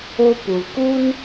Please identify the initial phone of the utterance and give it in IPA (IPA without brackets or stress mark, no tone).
o